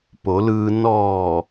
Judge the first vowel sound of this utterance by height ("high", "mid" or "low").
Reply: mid